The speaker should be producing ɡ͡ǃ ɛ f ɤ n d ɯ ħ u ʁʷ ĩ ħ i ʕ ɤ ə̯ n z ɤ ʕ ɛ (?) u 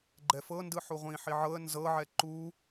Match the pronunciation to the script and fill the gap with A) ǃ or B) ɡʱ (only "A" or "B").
A